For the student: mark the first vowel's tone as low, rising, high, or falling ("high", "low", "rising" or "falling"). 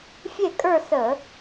falling